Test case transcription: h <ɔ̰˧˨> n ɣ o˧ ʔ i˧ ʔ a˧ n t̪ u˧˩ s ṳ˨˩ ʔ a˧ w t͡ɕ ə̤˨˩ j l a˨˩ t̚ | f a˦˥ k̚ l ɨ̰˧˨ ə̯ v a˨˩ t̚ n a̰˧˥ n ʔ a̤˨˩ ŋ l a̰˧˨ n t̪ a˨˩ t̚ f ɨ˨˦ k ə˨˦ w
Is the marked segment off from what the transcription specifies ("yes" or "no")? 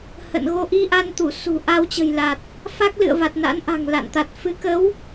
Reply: yes